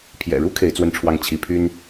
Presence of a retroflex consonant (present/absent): present